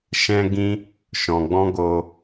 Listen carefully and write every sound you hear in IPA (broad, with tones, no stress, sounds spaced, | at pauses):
ʃ ɛ̃˦ ɡ ĩ˦ | ʃ ɔ̃˨ ɡ͡b ɔ̃˦ ɡ oː˧